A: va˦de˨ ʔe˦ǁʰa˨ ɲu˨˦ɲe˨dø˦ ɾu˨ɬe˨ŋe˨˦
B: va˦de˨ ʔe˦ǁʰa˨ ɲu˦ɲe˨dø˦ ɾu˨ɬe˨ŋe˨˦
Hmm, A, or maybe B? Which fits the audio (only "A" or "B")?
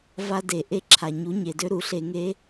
A